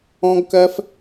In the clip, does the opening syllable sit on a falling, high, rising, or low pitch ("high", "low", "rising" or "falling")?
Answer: high